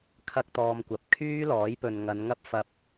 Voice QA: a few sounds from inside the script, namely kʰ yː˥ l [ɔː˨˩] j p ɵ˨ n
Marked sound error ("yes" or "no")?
yes